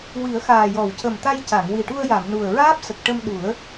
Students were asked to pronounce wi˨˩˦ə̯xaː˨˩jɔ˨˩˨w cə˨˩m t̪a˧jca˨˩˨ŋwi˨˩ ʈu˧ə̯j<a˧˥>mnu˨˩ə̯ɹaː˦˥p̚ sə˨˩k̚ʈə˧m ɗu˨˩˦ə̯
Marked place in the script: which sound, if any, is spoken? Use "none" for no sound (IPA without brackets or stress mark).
a˨˩˨